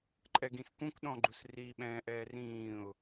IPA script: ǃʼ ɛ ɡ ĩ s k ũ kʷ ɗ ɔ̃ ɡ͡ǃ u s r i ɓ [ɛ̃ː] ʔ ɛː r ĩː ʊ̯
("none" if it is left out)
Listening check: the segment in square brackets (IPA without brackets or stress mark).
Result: ɛ̃ː